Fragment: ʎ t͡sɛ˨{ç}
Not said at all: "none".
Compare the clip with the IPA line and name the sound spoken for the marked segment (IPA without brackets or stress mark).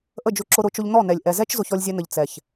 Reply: ç